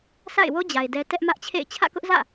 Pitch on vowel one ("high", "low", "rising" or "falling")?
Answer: falling